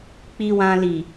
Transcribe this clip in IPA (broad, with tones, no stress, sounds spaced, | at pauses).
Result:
k͡p i˨ w ã˨ l i˨